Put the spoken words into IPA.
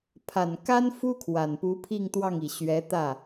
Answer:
pʰ a˨˩ n k a˥ n f u˥ kʰ w a˨˩ n p u˧˥ pʰ i˥˧ ŋ t̪ w ɑ˥˩ ŋ i˨˩ ɕ ɥ ɛ˧˥ t̪ ä˥˩

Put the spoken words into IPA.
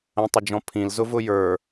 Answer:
ə̃ tˤ ə d͡ʒ ɔ̃ pʰ ĩ l z ʊ v ʊ j ə˞

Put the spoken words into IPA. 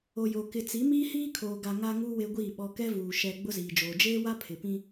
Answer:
o˨ j o˨ k ɪ˨ t͡s i˨˦ m iː˦ h iː˦ kʰ oː˨ ɡ a˨ ŋ a˦ ŋ u˦ w e˦ ɡʷ iː˦˨ ɓ ɔ˦ k ɛ˦ v uː˨ ʃ ɛ˨ ɡ͡b ʊ˦ z iː˨ d͡ʒ oː˨ d͡ʒ eː˦ w a˦ pʰ ɪ˨ p ĩ˦

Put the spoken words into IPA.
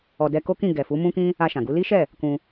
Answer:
ɔ˨ d ɛ˧ k o˦ k ĩ˦˨ ɡ ɛ˨ f u˨˦ m ũ˦ k ĩ˦ | a˧ ʃ ã˨ ɡ u˨˦ l i˦ ʃ ɛ˦˨ | k ũ˧

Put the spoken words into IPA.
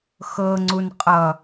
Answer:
x ɤ ŋ͡ǀ u n qʼ ʌ

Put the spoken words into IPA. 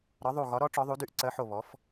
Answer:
ɾ ɒ˨˥ ðˤ u˧˩ ɣ ɒ˨˥ ɾ ɔ˨˥ ʈ͡ʂ ɔ˨˥ ðˤ u˨˥ d y˨˥ ʔ ǀ ɜ˨˥ ħ o˧˩ β ɔ˨˥ f

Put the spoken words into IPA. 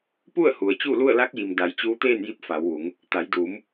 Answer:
p u˥˨ ə̯ h u˩ ə̯ t͡ɕ u˥˨ l u˥˨ ə̯ l a˧˥ k̚ j i˩ m d a˩˧ j t͡ɕ uː˧ t̪ eː˥˨ n j i˧ p̚ f a˩˧ w ʋ u˩˧ ŋ | t̪ a˩˧ j d uː˩˧ m

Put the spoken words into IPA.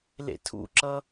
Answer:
l ḛ tʰ ṵ ǁ ʌ

